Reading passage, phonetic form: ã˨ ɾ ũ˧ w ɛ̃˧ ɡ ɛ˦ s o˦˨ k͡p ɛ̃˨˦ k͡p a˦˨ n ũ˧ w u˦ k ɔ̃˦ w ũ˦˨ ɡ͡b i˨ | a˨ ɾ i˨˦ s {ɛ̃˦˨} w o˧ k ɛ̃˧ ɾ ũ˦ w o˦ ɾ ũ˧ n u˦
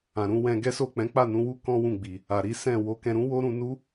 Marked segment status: correct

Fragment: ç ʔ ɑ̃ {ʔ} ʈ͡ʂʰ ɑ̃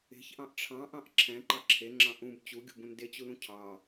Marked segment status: correct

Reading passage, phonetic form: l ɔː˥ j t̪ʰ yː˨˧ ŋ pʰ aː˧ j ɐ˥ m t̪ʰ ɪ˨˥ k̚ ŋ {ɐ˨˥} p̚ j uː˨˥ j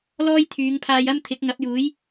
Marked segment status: correct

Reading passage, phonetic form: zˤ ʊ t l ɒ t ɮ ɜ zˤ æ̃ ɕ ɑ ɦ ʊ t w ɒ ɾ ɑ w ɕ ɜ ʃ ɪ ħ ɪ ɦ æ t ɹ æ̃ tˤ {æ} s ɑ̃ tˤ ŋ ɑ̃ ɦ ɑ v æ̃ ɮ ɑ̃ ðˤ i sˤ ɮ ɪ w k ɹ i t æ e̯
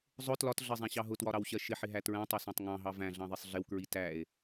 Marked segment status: incorrect: ɜ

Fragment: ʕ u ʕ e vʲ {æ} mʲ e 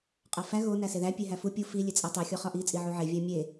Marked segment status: correct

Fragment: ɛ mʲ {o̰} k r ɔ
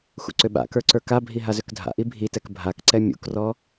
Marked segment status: incorrect: ṵ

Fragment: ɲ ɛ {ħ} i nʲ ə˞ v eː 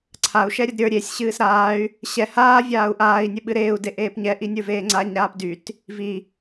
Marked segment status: incorrect: ʔ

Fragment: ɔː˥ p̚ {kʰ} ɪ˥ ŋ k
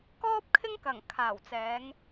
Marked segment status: correct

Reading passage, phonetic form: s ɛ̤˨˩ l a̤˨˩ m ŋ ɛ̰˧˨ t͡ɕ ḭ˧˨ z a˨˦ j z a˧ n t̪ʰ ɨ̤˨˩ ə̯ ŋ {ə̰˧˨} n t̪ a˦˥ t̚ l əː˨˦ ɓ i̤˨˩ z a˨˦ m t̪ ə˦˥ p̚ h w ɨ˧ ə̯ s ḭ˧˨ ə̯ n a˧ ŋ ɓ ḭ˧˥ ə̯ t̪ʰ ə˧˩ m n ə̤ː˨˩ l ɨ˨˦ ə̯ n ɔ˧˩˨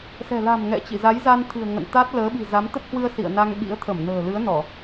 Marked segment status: correct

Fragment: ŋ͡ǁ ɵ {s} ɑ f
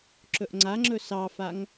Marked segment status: correct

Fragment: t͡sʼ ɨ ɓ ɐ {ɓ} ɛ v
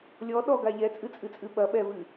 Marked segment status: correct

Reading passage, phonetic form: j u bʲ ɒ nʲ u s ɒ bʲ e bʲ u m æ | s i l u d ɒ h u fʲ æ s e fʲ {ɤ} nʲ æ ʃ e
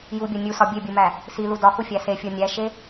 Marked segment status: incorrect: o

